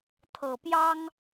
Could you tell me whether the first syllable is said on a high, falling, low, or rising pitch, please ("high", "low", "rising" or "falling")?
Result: low